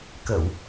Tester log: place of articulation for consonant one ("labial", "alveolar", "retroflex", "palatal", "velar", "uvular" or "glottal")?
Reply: velar